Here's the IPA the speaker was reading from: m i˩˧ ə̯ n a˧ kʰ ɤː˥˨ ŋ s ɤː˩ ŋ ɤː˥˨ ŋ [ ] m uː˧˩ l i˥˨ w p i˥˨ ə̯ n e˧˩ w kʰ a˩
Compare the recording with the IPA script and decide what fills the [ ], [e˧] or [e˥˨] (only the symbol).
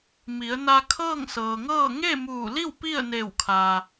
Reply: e˥˨